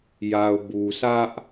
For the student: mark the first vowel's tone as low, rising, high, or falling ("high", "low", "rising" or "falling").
low